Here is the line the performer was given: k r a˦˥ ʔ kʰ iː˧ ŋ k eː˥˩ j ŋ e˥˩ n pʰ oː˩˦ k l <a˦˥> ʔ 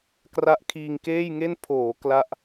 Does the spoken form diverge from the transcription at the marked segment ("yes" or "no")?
yes